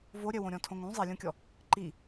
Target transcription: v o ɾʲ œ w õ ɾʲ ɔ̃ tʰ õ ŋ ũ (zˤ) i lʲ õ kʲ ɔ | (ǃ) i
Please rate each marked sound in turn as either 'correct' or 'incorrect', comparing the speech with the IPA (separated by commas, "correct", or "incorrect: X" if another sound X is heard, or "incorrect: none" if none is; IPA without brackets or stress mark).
correct, correct